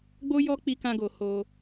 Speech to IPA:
ɡ͡b o˦ j ɔ˦ k͡p i˦ k ã˦ ɡ o˧ h o˧

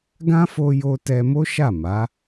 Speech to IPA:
ɡ ã˦ f o˧ j o˧ t ɛ˧ m o˦ ʃ a˦˨ m a˨˦

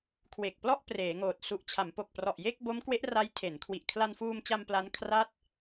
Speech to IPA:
kʰ w e˨˩ k̚ p l ɔ˥˩ ʔ p r eː˩˦ ŋ oː˨˩ t̚ s u˨˩ ʔ t͡ɕʰ a˩˦ m p o˨˩ k̚ p r ɔ˨˩ ʔ j e˥˩ k̚ b o˦˥ m k w e˦˥ ʔ r a˦˥ j tʰ e˩˦ n kʰ w i˨˩ ʔ kʰ l a˧ n f uː˧ m t͡ɕ a˧ m p l a˦˥ n kʰ r a˥˩ t̚

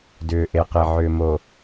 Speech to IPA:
d ʏː˨ ʔ e˨ q e˨ ʕ ʏː˨ m o˨

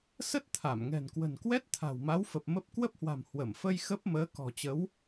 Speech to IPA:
s ə˦˥ t̚ t̪ʰ a˧˩ m ŋ ɛ̤˨˩ n k w ə̤˨˩ n k w ɛ˦˥ t̚ t̪ʰ a̤˨˩ w m a˨˦ w f ə˨˩ p̚ m ə˦˥ p̚ k w ə˦˥ p̚ h w a̤˨˩ m h w ə˧˩ m f ə˧ j x ə˦˥ p̚ m əː˨˦ k ɔ̤˨˩ t͡ɕ ə˨˦ w

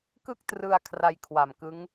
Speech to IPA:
k ɯ˥˩ k̚ t r ɯ˧ a̯ kʰ r a˧ j kʰ w a˨˩ m k ɯ˦˥ ŋ

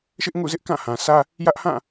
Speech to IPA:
ʃ ɪ˦ ʔ ŋ ṵ˦˨ z ɪ˦ ʔ k ã˦˨ h ã˨ s ä˦ | j ä˦ ʔ h ã˦˨

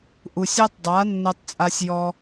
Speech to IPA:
ʔ u˨ sʲ a˦ tˤ dˤ a˨˦ nː ɜ˧ tˤ t͡sʼ a˧ sʲ j ɔ˧

